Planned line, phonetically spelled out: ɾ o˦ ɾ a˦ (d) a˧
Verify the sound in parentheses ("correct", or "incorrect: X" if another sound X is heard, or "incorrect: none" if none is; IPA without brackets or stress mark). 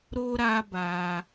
incorrect: b